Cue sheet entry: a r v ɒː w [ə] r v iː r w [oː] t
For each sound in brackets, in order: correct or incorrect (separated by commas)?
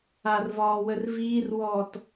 correct, incorrect